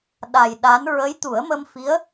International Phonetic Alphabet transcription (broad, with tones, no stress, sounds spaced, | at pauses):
ɗ a˨˩ j ɗ a˧˥ n ɹ ə˧˥ j t̪ u˨˩˦ ə̯ m ə˧ m f i˧˥ ə̯